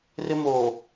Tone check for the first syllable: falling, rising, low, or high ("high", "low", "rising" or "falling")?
high